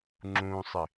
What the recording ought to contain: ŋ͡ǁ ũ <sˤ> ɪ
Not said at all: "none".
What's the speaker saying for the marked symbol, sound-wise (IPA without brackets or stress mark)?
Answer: sˤ